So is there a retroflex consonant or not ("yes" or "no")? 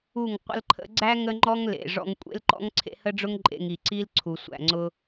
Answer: yes